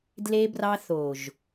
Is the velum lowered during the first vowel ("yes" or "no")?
no